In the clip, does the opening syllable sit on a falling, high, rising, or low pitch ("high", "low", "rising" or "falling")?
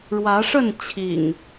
rising